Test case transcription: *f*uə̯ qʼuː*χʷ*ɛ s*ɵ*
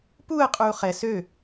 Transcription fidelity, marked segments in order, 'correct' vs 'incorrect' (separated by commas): incorrect, incorrect, incorrect